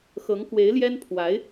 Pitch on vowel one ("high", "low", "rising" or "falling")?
rising